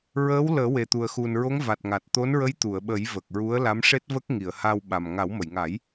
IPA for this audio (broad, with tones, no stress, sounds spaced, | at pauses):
ɹ əː˧˥ w l əː˨˩˦ w e˨˩ t̪ u˨˩ ə̯ x u˨˩ n ɹ o˧˥ ŋ v a˨˩ t̚ ŋ a˨˩ t̚ t̪ o˧˥ n ɹ ə˧˥ j t̪ u˨˩˨ ə̯ ɓ ə˨˩˦ j v ə˨˩ k̚ ɹ u˧˥ ə̯ l a˧˥ m ʂ e˦˥ t̚ v ə˦˥ k̚ ŋ i˨˩˨ ə̯ h a˧ w ɓ a˨˩ m ŋ a˨˩˦ w m ə˨˩˨ j ŋ a˨˩˦ j